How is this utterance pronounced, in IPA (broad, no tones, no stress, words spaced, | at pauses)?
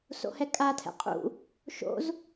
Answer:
so̰hɛkʼa tʰɛ̰qʼṵ | ʃo̰z